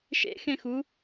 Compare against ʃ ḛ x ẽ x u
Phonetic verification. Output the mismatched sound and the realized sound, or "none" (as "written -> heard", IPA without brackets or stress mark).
none